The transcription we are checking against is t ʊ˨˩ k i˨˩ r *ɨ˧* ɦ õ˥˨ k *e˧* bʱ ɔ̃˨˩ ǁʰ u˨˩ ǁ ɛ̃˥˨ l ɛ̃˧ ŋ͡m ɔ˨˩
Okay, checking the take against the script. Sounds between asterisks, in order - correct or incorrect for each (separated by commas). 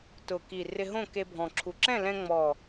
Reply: incorrect, correct